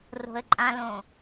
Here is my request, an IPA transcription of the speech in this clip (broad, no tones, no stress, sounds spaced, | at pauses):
r o̤ ə̯ ǃʼ ã l õ